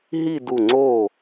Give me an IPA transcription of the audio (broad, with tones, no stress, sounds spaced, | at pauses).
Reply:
ɦ i˥˧ d u˧˩ ŋ͡ǀ o˥˩